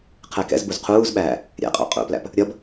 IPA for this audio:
qʰ ɛ k ɛ̰ z b u z qʰ uː z ɓ æː | ɾʲ ɛ̰ qʼ ɑ̰ qʼ ṵ p l æ̰ p | ɾʲ ʌ b

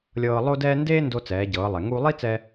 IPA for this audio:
lʲ ɤː˧ lˠ o˥ d ɛː˥ n d eː˥ n d o˧ t͡s ɛː˩˧ ɟ ɤː˩˧ lˠ ɛ˩ ŋ uː˧ lˠ i˥ t͡s ɛ˧

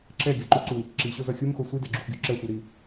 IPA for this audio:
ǁ ɛ ɡʲ ʌ ǃ u ǀ u | ǁ i ɕ o z ʌ xʲ u m x o sʷ i d ɛ ɡ͡ǁ u x ɡʲ u ǁ ɛ sʷ ɛ ɾ i

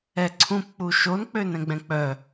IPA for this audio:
ɛ ǀʰ ũ p k͡p u ʃ o n k͡p ø n ɛ̃ ɡ͡b ɛ̃ k͡p œ

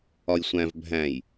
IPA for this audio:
ɒ j sʷ æ̃ v bʱ æ̃ j

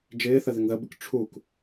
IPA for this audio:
d͡ʒ ɪː θ ə ð ɪ ŋ ð ə b ɪ k ʈ͡ʂʰ u k

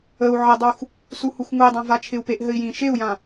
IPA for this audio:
ə u̯ ʕ ɪ dˤ u x | s u h u x ŋ u i̯ dˤ ã v a t͡ʃʰ ɪ u̯ p e ʔ ɦ ɘ i̯ j ĩ ʃ e u̯ j ã

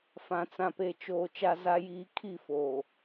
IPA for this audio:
f ã˨ t͡s ã˨ p e˨ t͡ʃ oː˨ t͡ʃ a˦ z a˦ j iː˦ kʰ i˦˨ f oː˨

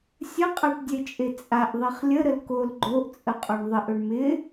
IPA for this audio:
sʲ ə qʼ a ʈ dʲ e t͡ʃʼ e t͡sʼ a ʔ ðˤ i χ lʲ ə ɾ ə l k o l ɡ͡ǃ o ʔ t͡sʼ ə qʼ o ɳ ðˤ ɪ ʔ ɵ ɳ m ɪ

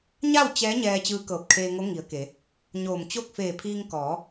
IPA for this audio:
ɲ a˥˨ w t͡ɕ ɛː˧˥ ɲ ɛː˧ t͡ɕ ɯː˧˥ k ɤː˧˩ p̚ kʰ eː˧ ŋ o˧˥ ŋ i˩˧ ə̯ k e˩˧ | ɲ oː˧˩ m t͡ɕ o˥˨ k̚ f eː˧˩ pʰ iː˧ ŋ k ɔː˩˧

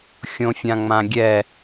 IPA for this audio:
xʲ õ fʲ ã ŋ͡m ã ɡʲ ɛ

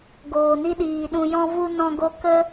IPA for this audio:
ɡ oː˨ n i˧ ɗ iː˨ ɗ ũ˨ j ɔ̃˧ v u˧ n ɔ̃˧ ɡ o˧ k ə˦

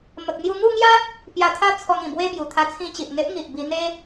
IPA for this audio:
m ə˨ k̚ n̪ j u˧ ŋ u˥˧ ŋ j a˦ | p j a˧ t̪ʰ a˦ t͡sʰ ɔ˧ ŋ ĩ˨˩ b w e˦ b j u˨˩ t̪ʰ a˧ t͡sʰ ĩ˧ t͡ɕ i˨ ʔ ŋ e˦ ʔ ŋ i˨ ʔ b i˧ n̪ e˦

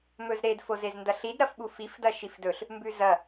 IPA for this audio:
m ɵ z ɾ e d f o z e z n d ɐ ɬ i d ɾ ɐ f ɓ u f i f d ɐ ʃ i f d ɵ ɬ | m b ʉ z ɐ

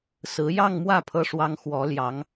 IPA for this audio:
s ɹ̩˧˥ j ɑ˥˧ ŋ m w ä˥˩ pʰ ɤ˥ ʂ w ɑ˥ ŋ x w ɔ˧˥ l j ɑ˧˥ ŋ

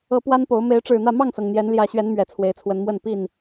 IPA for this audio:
ɤ˨˦ p w a˦ n p o˨˦ ʊ̯ m e˨˦ ɪ̯ ʈ͡ʂ ɻ̩˨˩ n̪ ä˥˨ m ɑ˥˨ ŋ s ɤ˩ ŋ n̪ j ɛ˨˦ n l j ä˨˦ ɕ ɥ ɛ˨˦ n m ɥ ɛ˨˩ t͡sʰ w e˨˦ ɪ̯ t͡sʰ w ə˨˦ n m w ə˥˨ n p i˥˨ n

